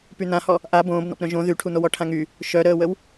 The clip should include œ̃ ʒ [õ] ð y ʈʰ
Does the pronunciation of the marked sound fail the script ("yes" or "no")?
no